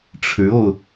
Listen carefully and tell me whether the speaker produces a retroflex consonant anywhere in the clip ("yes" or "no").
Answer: yes